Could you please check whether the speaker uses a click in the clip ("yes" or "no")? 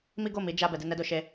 no